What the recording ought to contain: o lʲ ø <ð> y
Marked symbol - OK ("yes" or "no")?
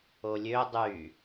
no